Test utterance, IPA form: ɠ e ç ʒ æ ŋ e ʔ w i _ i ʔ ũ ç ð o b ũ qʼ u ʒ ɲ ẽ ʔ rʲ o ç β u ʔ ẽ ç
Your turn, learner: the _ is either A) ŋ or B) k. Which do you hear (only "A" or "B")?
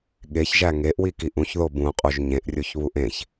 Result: B